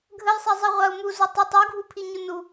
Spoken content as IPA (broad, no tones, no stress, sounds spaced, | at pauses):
ɡʱ ə j sˤ ɛ zˤ ɛ ʁʷ a u̯ m u z ʊ tˤ ə tˤ u ɡʱ u pʰ i ɲ u n u